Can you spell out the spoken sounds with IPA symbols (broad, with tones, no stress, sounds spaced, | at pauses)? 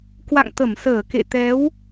k w a̰˧˨ ŋ t̪ ə˧˩ m s əː˧˩ k ḛ˧˨ t̪ ɛ˨˦ w